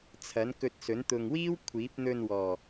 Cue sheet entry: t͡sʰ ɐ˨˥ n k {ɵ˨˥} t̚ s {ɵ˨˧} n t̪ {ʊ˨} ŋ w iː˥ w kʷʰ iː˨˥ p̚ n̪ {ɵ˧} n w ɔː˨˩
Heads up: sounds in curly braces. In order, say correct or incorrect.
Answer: incorrect: ɵ˧, incorrect: ɵ˨˥, correct, correct

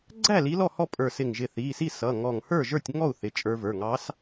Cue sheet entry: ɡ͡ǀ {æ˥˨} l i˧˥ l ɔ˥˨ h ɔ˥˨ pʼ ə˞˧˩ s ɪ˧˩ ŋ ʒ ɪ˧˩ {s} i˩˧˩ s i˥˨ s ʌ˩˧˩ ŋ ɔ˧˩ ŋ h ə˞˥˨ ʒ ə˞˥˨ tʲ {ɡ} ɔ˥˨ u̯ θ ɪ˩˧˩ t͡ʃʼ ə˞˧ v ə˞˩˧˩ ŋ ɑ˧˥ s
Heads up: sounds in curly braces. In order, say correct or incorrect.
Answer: correct, incorrect: θ, incorrect: ŋ

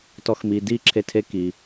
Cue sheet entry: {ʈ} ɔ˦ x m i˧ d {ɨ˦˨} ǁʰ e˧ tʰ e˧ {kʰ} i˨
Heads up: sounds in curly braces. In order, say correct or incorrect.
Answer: incorrect: t, incorrect: i˦˨, incorrect: k

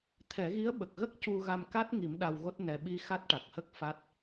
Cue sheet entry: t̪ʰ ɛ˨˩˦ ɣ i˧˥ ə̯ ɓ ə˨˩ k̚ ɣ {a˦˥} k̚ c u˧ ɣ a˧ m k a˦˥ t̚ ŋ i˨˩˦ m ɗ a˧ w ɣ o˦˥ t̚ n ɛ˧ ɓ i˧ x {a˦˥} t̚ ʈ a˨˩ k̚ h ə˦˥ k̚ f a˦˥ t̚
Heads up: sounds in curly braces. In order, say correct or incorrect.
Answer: incorrect: ə˦˥, correct

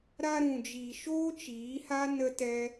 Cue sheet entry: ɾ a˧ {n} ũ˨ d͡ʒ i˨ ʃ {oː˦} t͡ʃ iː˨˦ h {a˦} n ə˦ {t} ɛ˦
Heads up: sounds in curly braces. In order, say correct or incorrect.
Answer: incorrect: ɾ, correct, correct, correct

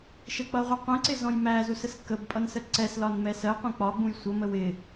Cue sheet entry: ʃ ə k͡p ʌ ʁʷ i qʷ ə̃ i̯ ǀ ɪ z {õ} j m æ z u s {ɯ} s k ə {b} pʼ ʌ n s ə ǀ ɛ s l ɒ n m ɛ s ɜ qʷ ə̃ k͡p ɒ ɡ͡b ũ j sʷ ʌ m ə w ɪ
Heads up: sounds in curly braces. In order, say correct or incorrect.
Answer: incorrect: ɔ̃, incorrect: ə, correct

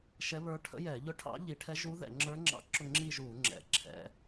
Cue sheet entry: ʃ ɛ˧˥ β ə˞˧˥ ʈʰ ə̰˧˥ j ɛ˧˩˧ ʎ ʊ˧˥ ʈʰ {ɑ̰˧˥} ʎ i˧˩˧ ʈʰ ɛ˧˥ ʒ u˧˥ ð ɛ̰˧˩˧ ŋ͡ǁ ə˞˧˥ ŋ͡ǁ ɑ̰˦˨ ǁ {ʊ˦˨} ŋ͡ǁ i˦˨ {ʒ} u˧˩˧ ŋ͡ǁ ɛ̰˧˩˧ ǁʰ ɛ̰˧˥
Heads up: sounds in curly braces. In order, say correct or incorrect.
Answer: correct, correct, correct

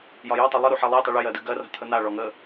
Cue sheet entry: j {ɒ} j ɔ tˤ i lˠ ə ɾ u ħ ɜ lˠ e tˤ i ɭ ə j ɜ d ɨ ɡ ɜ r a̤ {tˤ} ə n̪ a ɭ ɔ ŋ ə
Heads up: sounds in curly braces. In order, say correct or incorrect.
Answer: correct, incorrect: t̪ʰ

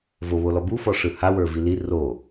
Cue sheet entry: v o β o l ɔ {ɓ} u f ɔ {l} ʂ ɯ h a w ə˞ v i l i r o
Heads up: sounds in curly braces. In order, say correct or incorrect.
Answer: incorrect: b, incorrect: none

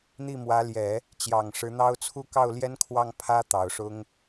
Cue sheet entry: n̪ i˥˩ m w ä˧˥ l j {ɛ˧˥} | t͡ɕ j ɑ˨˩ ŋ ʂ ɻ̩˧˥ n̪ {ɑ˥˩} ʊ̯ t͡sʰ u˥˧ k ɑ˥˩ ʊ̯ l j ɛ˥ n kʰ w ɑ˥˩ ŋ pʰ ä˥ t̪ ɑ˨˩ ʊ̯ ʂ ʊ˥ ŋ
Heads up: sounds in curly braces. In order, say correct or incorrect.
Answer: incorrect: ɛ˨˩˦, incorrect: ɑ˥

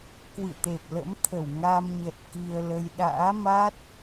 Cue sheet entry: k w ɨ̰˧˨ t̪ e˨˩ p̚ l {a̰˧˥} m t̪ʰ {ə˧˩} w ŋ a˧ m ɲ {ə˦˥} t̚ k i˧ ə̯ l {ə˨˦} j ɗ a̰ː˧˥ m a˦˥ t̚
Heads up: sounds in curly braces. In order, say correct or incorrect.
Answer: incorrect: ə̰˧˥, correct, incorrect: ə˨˩, incorrect: ə˧

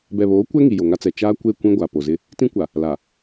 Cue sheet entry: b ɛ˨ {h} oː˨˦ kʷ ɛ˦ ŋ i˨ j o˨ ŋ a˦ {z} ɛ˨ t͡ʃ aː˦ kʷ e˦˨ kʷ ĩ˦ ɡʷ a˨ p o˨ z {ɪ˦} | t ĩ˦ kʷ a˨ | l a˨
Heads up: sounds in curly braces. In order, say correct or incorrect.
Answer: incorrect: β, incorrect: t͡s, correct

